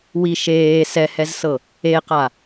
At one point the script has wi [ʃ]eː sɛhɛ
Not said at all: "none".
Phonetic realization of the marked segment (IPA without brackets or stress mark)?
ʃ